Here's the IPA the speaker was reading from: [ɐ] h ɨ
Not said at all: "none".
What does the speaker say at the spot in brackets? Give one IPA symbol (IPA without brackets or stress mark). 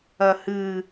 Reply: ɐ